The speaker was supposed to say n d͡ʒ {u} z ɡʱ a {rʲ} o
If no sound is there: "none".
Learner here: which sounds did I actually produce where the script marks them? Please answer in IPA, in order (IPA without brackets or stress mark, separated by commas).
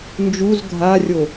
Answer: u, rʲ